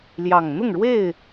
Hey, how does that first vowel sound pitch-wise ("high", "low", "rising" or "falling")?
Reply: low